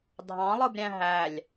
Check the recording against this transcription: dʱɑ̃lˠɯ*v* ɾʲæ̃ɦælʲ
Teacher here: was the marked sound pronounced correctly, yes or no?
no